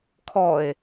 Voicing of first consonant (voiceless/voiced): voiceless